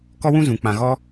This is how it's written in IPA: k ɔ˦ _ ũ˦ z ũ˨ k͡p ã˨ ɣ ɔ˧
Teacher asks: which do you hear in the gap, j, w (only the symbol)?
w